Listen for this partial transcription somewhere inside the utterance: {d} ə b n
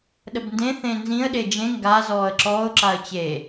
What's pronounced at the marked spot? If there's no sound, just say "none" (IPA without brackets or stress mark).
ɗ